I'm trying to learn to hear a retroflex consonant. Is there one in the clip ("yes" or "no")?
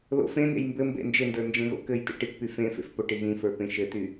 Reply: yes